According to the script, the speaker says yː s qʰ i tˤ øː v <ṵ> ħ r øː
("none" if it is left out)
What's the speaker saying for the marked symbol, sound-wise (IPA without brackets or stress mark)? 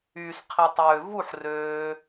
u